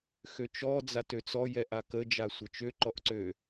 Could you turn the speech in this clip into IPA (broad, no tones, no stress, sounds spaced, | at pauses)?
x ø t͡ʃ ɔ d͡z a t ø t͡s ɔ j ɛ ʔ a k ə d͡ʒ a sʷ ə t͡ʃ ø ǃ ɔ ʔ ǀ ø